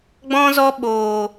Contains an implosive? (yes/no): yes